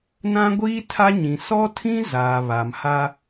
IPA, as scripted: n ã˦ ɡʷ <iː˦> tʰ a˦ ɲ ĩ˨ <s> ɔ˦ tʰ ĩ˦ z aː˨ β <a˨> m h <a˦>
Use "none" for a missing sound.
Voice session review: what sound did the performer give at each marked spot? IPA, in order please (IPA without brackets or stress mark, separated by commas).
iː˦, s, a˨, a˦